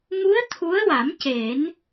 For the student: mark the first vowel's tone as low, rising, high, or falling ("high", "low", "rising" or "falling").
rising